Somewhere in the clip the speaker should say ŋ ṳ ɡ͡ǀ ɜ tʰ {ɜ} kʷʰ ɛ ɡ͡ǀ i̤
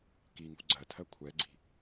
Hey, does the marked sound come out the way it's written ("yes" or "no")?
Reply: yes